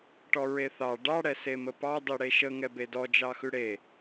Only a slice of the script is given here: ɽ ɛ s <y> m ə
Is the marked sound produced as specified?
no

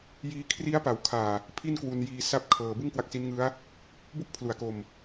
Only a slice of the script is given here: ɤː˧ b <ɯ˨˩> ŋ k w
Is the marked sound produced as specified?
no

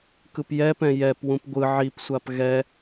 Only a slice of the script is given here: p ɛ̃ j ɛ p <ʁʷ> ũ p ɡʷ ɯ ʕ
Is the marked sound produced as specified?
no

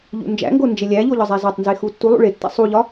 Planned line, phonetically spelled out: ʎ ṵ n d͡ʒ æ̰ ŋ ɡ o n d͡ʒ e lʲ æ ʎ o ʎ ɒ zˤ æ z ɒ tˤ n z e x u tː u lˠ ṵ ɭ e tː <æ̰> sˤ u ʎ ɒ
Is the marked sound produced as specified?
yes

